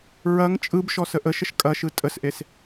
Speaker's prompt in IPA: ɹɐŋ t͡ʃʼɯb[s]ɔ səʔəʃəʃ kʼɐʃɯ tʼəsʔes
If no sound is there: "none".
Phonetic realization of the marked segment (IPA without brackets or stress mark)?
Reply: ʃ